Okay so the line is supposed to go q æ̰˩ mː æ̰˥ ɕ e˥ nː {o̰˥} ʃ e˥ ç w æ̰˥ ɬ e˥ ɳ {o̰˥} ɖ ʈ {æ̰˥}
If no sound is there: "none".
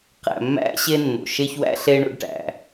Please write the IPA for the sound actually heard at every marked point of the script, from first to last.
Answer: o̰˩, o̰˥, æ̰˩

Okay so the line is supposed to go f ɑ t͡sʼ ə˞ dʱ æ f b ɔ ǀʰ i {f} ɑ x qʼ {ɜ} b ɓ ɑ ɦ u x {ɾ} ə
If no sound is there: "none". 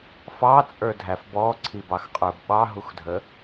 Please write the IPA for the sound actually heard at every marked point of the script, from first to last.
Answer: b, ə˞, dʱ

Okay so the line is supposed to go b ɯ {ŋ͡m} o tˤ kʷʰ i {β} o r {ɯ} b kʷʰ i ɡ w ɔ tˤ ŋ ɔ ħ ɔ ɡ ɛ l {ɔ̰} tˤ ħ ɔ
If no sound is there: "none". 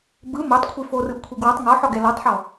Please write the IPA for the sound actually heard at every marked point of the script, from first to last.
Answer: m, f, ɯ, ɔ

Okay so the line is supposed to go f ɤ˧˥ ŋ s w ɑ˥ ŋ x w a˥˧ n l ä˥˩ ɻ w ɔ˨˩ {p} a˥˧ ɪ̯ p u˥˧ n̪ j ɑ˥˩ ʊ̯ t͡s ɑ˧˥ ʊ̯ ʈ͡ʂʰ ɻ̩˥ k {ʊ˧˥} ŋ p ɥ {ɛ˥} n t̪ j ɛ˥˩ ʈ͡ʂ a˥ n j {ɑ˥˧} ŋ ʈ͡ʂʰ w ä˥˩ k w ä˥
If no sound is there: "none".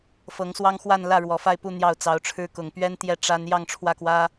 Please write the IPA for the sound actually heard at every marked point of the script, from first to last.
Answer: f, ʊ˨˩, ɛ˥, ɑ˥˧

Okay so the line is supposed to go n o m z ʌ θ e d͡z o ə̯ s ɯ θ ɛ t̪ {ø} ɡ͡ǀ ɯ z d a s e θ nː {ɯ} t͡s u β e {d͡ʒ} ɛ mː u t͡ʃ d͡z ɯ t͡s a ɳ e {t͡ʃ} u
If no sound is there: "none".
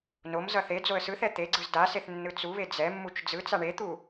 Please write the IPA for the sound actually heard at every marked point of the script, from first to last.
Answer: e, ɯ, d͡z, t̪

